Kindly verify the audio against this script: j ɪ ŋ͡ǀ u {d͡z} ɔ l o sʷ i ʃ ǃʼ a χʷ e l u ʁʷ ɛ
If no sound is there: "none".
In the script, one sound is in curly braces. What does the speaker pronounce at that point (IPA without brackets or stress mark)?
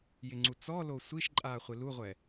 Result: t͡s